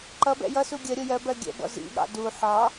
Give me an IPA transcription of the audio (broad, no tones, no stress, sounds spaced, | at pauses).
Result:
ǃ ʌ b ɛ̰ j ʌ s u ɡʲ ə ɾʲ ʊ j ɜ b ɜ ɡʲ ɛ̰ b ɔ̰ z ḭ ɠ ɑ̰ d u ħ ɑ